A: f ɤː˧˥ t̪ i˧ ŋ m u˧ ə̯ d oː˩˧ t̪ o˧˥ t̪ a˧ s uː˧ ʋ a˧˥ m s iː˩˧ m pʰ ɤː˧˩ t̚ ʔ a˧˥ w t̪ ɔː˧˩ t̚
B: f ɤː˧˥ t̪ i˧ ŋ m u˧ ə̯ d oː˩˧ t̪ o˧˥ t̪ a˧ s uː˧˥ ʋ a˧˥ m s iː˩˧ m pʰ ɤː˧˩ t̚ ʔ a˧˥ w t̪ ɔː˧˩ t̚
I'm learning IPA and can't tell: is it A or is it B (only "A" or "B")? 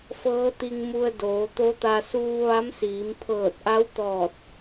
A